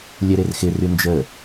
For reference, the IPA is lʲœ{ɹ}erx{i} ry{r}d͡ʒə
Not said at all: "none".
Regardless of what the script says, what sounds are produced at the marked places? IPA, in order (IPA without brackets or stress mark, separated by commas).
ɾ, ɪ, n